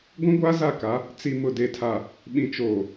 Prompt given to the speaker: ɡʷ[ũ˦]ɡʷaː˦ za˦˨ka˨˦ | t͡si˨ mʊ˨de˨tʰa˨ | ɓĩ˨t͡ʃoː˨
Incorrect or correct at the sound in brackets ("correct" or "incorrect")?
correct